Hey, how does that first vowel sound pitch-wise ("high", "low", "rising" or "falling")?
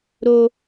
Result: high